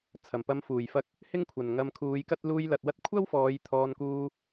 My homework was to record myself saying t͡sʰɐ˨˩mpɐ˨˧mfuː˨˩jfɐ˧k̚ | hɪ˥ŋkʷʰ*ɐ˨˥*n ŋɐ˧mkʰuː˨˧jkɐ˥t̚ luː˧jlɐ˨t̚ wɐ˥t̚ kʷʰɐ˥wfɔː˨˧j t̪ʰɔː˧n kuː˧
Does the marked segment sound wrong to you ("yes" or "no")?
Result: yes